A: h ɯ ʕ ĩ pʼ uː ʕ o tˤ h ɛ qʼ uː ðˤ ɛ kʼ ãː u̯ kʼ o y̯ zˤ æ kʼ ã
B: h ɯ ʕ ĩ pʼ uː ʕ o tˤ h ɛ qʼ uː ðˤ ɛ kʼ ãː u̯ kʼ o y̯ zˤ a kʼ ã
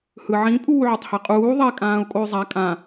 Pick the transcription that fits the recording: B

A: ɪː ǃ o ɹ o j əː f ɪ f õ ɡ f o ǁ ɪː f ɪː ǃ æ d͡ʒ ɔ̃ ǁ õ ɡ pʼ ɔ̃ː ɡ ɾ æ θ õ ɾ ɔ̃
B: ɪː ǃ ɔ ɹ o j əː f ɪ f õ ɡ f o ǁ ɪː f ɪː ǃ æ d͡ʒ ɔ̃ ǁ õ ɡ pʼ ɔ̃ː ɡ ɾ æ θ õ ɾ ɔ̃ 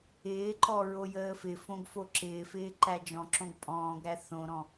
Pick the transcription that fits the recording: B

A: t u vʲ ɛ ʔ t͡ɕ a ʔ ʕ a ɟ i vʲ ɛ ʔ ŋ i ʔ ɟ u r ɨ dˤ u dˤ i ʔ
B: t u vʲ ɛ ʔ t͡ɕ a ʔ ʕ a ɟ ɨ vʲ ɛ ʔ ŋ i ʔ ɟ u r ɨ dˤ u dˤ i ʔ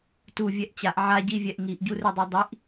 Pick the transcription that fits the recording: A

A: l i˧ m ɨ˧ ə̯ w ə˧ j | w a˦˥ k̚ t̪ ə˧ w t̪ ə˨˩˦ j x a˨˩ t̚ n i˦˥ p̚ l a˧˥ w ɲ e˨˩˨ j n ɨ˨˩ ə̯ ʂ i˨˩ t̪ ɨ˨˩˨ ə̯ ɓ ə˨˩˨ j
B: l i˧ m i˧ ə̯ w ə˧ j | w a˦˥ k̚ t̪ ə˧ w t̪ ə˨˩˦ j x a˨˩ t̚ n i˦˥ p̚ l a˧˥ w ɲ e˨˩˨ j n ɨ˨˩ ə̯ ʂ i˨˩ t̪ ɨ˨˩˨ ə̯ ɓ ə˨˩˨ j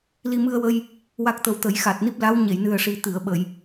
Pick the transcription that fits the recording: A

